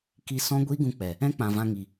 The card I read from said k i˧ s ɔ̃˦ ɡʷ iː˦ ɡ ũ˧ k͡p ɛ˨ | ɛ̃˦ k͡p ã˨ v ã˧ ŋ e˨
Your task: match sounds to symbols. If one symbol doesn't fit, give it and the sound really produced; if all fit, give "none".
e˨ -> i˨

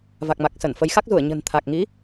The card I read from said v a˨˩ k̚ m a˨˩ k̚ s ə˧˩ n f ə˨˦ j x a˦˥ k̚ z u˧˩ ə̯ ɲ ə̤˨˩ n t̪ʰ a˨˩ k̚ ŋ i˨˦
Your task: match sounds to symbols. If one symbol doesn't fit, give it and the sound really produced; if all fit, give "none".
none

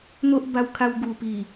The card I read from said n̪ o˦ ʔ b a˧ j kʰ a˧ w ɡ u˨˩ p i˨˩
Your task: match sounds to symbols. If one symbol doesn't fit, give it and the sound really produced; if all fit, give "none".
j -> w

